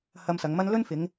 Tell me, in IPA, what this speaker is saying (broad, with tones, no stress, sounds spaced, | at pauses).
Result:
h ɐ˧ m s ɐ˨˧ ŋ m ɐ˥ n l ɵ˥ n f ɪ˨˧ ŋ